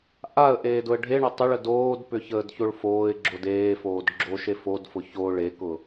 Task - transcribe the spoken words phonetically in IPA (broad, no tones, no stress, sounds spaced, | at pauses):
ʔ a ə̯ ʔ eː d ʊ ə̯ ɖʱ e ɳ ʏ tˤ ʏ ɭ ə d oː d p ʏ ç əː d ç o ɭ f oː ɪ̯ ɡ͡ǁ o d eː f oː d ɡ͡ǁ o ʃ e f o d f ʊ ç o ɭ e k ʊ